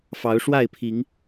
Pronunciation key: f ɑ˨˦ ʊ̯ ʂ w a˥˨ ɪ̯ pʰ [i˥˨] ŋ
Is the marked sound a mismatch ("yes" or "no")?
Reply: yes